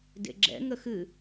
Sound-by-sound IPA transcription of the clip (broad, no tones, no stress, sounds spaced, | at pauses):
d ḛ ɡ͡ǁ ɛ̰ ŋ ə x ɨ